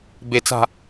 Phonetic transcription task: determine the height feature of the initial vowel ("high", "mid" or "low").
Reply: mid